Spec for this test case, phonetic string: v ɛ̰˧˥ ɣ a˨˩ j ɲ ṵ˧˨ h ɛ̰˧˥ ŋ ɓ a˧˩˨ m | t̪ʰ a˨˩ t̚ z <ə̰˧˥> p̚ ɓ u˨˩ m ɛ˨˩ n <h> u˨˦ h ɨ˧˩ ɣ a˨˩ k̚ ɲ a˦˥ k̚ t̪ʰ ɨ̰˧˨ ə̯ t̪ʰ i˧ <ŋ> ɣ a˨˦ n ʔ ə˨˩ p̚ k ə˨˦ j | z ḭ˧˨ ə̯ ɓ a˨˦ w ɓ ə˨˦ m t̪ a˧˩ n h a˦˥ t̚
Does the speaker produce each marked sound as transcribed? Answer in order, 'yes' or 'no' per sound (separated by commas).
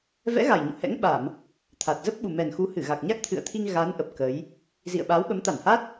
no, no, yes